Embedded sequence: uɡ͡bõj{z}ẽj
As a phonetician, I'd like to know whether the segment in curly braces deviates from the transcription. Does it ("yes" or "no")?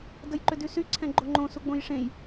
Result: yes